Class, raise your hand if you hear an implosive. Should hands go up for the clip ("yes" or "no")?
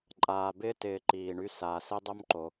no